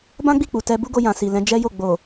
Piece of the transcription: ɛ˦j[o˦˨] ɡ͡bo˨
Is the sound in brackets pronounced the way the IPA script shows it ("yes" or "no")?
yes